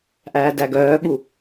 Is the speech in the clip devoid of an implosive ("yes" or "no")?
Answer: no